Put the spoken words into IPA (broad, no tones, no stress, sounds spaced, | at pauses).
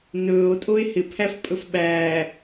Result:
n ɵː o̯ tʼ o e̯ h ɪ pʰ æ f pʼ ɵ f ɓ æː